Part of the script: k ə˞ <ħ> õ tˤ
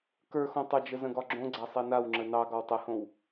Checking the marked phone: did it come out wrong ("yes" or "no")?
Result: yes